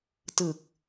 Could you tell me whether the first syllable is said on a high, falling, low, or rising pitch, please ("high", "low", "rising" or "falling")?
low